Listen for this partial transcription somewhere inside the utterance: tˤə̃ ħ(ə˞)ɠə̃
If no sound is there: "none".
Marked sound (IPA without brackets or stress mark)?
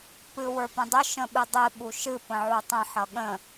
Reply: ʌ